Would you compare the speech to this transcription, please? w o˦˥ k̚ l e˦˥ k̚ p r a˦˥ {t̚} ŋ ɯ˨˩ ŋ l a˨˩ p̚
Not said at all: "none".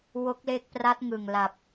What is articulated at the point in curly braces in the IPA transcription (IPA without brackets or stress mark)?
t̚